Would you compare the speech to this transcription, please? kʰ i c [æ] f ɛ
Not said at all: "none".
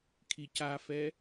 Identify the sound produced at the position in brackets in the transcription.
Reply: a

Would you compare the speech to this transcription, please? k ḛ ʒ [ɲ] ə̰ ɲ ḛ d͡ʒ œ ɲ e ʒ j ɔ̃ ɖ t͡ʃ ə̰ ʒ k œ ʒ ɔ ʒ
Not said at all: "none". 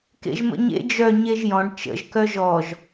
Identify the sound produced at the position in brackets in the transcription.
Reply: m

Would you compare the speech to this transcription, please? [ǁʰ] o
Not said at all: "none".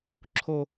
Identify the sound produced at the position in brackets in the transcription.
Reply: ǁʰ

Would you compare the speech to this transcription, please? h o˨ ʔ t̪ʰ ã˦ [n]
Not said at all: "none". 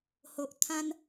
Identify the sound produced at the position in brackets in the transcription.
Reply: n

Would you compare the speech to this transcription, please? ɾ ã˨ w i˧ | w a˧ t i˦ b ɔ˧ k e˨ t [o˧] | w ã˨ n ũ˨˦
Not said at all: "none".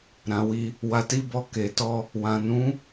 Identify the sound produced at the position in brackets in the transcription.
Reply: ɔ˧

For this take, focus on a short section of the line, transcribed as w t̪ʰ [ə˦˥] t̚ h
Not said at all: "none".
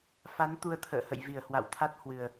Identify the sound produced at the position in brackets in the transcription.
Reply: a˦˥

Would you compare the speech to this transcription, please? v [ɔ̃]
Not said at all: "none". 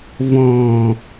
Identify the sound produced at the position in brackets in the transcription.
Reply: ɔ̃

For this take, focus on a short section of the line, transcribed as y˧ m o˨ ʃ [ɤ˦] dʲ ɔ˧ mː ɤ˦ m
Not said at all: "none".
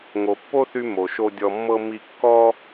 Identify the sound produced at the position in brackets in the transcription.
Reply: o˦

